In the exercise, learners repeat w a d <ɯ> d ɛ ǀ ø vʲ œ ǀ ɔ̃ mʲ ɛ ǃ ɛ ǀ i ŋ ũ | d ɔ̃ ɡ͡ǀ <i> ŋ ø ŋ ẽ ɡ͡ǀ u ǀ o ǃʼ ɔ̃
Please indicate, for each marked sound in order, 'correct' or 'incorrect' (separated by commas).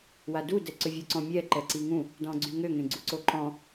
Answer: incorrect, incorrect